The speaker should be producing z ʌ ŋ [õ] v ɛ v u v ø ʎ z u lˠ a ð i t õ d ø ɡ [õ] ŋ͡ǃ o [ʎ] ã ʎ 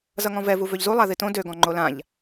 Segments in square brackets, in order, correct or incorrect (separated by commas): incorrect, incorrect, incorrect